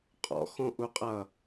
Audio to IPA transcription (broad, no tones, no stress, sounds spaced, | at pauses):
qʼ ɔ̰ x õ ʔ u qʼ ʌ